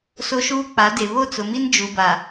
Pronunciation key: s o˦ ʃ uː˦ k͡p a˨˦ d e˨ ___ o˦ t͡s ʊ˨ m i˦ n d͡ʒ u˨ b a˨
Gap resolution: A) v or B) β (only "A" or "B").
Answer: B